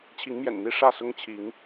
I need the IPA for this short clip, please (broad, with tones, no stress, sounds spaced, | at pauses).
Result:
t͡ɕʰ i˨˦ ŋ m j ɛ̰˨˩ n n̪ i˥˨ ʂ ä˥˨ s ʊ˦ ŋ t͡ɕʰ i˨˦ ŋ